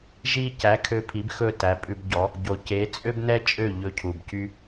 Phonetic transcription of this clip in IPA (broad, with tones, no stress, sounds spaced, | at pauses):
ʒ i˧ c æ˩˥ kʰ ø˧ pʰ i˩˥ b x ɵ˥˩ t æ˩˥ pʼ ʉ˧ b ɟ ɔ˩˥ | ɟ o˩ c e˩˥ t͡sʼ ø˥ b n ɛ˥ t͡ʃʼ ø˥˩ ʎ ɵ˧ cʰ u˩ b c y˧